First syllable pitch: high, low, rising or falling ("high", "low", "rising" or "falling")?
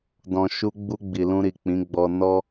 low